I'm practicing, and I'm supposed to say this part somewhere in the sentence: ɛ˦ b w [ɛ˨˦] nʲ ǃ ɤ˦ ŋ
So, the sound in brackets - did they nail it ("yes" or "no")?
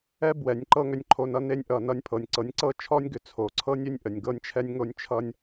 yes